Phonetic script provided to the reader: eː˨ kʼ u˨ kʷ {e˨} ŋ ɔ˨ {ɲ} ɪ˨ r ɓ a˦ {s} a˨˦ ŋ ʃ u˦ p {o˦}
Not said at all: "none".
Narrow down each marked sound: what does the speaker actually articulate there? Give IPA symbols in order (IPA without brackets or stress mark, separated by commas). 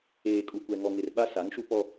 ɛ˨, ŋ, s, ɔ˦